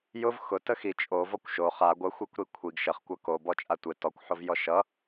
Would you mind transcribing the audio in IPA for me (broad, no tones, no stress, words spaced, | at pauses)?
jʊv xʊ təxi t͡ʃʼo vɔkʷʃo χa ɡʷə xʷekʷɾikʷʰiɡ ʃəχ kʷʌko bɔt͡ʃʼatʷe tɔkʷ ħovjɔʃʌ